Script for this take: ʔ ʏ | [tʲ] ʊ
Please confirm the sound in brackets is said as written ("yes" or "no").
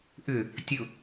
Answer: yes